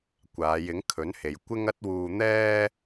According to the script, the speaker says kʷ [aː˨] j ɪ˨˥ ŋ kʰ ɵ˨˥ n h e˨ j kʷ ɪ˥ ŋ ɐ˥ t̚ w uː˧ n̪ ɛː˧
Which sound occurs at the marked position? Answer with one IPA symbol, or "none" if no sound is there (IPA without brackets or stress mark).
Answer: aː˨˧